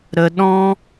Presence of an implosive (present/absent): present